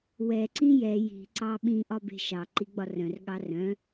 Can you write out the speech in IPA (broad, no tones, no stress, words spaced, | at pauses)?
wɛ ǀĩjɛ ji̤ ǀɑɓĩ ʔɒbe̤ʃɑ ǃiɡ͡bɒrœ̃r ɠɑrœ̃